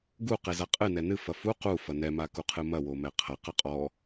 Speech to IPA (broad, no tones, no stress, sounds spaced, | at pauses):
ɡ u q e z a qʼ ɨ n ɛ n ɨ f ɐ f u q u f ɐ n ɛ m a k u qʰ ɨ m ɐ w o m ɛ qʰ ɐ q ɐ qʼ ɔ